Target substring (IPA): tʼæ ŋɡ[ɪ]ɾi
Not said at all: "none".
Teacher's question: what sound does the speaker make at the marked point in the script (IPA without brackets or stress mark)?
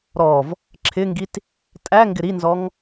ɪ